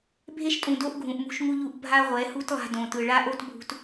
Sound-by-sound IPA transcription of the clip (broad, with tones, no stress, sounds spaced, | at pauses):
bʱ e˦ ʃ tʼ ũ˨ d o˦ ʔ ɡʱ ũ˨ ʔ m ṳ˦ ʃ ŋ u˦ ʎ u˦˨ ʔ bʱ a˦ ʁʷ ɛ˨˦ h u˦ t lˠ a̤˦ d õ˨ t ɯ˨ ɭ a˦ ʔ o˦ t bʱ ṳ˨ t